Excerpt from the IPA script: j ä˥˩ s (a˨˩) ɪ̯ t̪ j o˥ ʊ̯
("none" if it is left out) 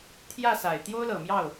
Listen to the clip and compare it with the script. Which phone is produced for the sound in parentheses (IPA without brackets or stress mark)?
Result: a˨˩